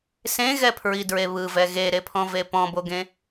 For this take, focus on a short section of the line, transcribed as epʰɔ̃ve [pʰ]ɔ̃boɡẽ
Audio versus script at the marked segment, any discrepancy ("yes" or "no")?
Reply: yes